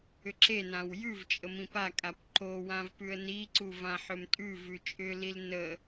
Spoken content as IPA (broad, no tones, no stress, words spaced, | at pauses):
ʏǁenãw jʉv t͡ʃʼəmĩpakʼap ǃowãv pʉə̯niǀu vãħʏmtʼʉvʉ t͡ʃʼʏlil nə